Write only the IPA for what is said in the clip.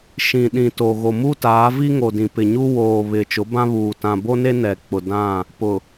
ʃĩ˨ɗĩ˨to˨ ɣo˨mu˦taː˨˦vi˦ ŋo˨dĩ˨pɪ˨ ɲu˦ woː˨ βɪ˨t͡ʃʊ˨˦bã˦βuː˨ tã˨ bo˦ne˦ nɛ˨k͡pʊ˨dã˦˨ | pʊ˨

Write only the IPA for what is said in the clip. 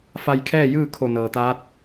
fa˧jkʰɛː˥˨jɯː˥˨ kʰo˧˩nɤː˩t̪aː˧˥t̚

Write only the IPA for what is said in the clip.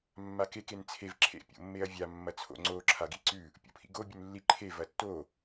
mːakek ent͡sʰev ǁʰḛ pʲo̰mːeɐ̯vʲa mːɐt͡sʰo̰ ŋ͡ǀo ǁʰaɡiǀʉ | pʲo̰pʰḭɡo bʲʉnlːi ǃʰe vɐtːo

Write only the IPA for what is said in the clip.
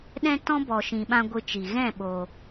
ɗɛ̃˦tɔ̃˦ bɔ˨ʃĩ˨ɓã˧ ɡʷɨ˧t͡ʃi˨ ɣɛ̃˦˨ɓoː˨

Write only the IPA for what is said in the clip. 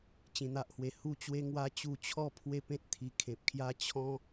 t͡ɕĩ˧n̪a˦ʔhwe˧ hu˥˧t͡ɕwe˦ŋwa˦ t͡ɕu˧t͡ɕʰɔ˥˧ pʰwe˥˧pẽ˦t̚ t̪ʰi˨˩kʰẽ˨p̚kʰja˦ t͡ɕʰɔ̃˦

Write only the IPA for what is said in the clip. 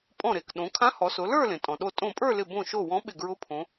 pʼɔ̃˧˩ɾe˩k ɗõ˩˧kʰã˧˥hɔ˩˧sʊ˩˧ lə˞˥˧ lẽ˩tʼɔ̃˩ɗo˧˩ tʼõ˧˩pʼə˞˥˧lɪ˧˩ bõ˧˩ʃo˧˩ wɔ̃˧˥ɓɪ˧˩ɡɹʊ˧˥pʰõ˩˧

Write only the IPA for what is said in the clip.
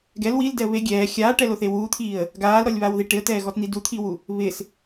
ɡɛl wildɛə̯ βe ɡʲɛː xʲaːʈɛloθe wut̪ʰiːə̯ | ɡaːlɾɔlʲβawði ʈɪə̯tɛːɣɔtn̪i dut̪ʰiwu | βɪs

